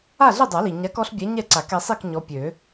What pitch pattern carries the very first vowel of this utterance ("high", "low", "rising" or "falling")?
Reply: falling